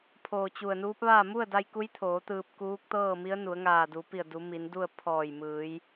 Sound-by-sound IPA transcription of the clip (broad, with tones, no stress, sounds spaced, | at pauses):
pʰ oː˧˩ t͡ɕ u˧˩ ə̯ n uː˧˥ p̚ ʋ aː˥˨ m u˥˨ ə̯ d a˧ j k u˧˥ j t̪ʰ oː˩˧ t̪ ɯː˧ p̚ k uː˧˥ k̚ t̪ ɤː˥˨ m i˧˥ ə̯ n u˩˧ ə̯ ŋ aː˧˩ d u˩˧ p i˧˩ ə̯ d u˩˧ m i˩˧ n d u˥˨ ə̯ pʰ ɔː˧˩ j m ɯː˩˧ j